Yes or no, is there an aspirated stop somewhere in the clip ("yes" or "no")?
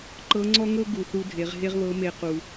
no